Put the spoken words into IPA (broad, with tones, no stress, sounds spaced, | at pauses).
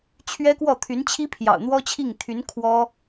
t͡ɕʰ ɥ ɛ˥ k w ɔ˥˩ t̪ʰ y˧˥ n t͡ɕʰ i˥ pʰ j ɑ̰˨˩ ʊ̯ n̪ w ɔ˥ t͡ɕʰ i˥˩ ŋ t̪ʰ y˧˥ n kʰ w ɔ˥